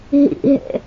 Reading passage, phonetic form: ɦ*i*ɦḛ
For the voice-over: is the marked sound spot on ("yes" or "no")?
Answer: no